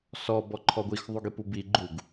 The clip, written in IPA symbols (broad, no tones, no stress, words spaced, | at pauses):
sɔ bɔǃʰɔɡʷix ðˤuɡipubi ɡ͡ǃuɡ